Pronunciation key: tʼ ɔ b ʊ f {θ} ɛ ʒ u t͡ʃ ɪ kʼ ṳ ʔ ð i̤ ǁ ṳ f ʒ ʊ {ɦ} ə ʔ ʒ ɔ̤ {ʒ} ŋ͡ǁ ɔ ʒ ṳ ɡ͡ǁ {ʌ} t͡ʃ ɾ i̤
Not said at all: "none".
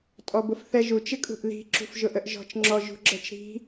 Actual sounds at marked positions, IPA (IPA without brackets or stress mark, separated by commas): θ, ʔ, t͡ʃ, ʌ